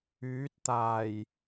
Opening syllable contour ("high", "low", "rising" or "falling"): rising